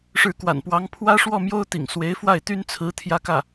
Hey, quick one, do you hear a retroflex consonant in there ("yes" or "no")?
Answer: yes